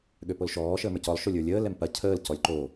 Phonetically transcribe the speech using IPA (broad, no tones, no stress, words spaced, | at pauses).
ɠøpolʃɔː ʃəːmə˞cɔlˠ ʃolʲə˞lʲəː lɛmpɐ cʰəːl cɔlʲǃo